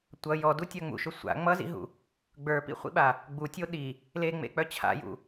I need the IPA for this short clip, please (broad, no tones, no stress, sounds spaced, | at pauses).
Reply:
tʷ ʌ j ɔ d u tʲ œ ŋ͡m ṵ ʃ ʊ sʷ a̰ ŋ͡m ʌ z ḭ ɦ ṵ | ɡ͡b ə˞ p ḭ χʷ ḭ ɓ a | ɡ͡b u tʲ o ɗ i | l e ŋ͡m ḛ k͡p œ t͡ɕʰ a̰ j ṵ